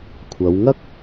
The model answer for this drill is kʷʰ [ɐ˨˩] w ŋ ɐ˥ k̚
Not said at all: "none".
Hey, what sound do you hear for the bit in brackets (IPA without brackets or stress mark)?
ɐ˨˧